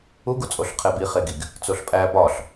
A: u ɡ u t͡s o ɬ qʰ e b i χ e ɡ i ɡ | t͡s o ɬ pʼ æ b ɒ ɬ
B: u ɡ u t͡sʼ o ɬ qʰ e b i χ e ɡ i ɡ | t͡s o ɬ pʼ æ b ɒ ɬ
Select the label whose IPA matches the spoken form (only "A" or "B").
B